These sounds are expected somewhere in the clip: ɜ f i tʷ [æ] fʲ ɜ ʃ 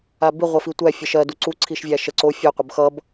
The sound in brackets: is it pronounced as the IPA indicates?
yes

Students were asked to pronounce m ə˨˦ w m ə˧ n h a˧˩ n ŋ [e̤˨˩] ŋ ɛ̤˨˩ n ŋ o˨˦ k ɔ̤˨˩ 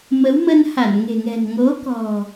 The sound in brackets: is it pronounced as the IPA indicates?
yes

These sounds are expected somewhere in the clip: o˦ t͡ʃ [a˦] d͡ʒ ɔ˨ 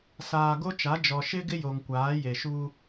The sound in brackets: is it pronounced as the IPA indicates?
no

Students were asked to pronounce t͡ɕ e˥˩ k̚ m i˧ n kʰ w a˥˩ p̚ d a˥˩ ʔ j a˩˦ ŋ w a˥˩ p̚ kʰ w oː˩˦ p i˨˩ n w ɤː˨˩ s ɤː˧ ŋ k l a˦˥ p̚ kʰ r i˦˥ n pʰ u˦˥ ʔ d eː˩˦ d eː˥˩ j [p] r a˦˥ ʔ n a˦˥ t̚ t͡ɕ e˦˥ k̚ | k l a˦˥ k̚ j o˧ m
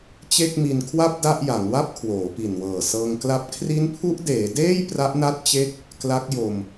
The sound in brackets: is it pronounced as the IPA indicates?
yes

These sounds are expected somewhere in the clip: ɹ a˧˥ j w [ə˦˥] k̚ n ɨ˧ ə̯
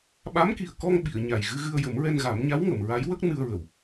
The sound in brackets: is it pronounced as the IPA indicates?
yes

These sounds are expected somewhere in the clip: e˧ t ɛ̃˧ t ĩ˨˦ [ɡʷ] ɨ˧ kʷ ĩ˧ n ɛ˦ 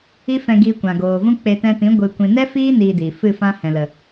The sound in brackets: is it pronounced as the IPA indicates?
yes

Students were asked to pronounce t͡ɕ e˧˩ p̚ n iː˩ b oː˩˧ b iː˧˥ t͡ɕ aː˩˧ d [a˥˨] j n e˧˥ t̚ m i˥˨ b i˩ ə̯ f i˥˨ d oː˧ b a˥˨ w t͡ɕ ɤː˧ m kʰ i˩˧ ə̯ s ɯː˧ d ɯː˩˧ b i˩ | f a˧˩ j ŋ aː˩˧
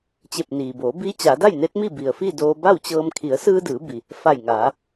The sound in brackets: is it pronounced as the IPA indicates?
yes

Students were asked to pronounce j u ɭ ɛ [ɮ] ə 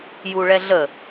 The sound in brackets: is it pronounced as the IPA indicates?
yes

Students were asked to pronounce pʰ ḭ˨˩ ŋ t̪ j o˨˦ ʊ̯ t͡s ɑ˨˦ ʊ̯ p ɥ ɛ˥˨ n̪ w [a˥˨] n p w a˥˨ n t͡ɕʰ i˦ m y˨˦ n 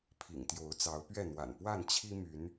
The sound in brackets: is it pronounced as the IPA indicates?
no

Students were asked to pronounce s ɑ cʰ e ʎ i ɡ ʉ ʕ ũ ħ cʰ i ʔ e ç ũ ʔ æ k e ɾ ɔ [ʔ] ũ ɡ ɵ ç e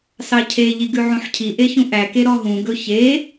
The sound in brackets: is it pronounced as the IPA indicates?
no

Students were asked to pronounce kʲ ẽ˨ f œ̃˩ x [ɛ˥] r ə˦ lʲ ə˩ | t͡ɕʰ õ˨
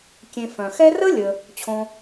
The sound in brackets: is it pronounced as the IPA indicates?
yes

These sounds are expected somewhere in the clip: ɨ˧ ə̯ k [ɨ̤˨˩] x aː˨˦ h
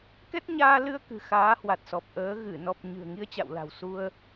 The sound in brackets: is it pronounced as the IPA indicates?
yes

